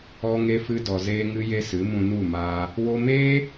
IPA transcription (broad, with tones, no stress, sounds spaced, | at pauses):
ɔ˧ ŋ e˧ f ɨ˧ d ɔ˨ z eː˧ ŋ ɨ˧ j e˧ s ɨ˨˦ m ũ˧ n u˦˨ m aː˧ | w o˧ m eː˦